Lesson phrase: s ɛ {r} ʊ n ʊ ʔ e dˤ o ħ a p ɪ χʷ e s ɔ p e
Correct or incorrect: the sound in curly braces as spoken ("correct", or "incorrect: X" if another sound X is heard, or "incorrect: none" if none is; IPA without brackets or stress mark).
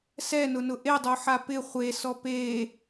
incorrect: n